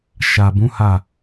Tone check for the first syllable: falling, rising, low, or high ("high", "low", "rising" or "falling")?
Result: low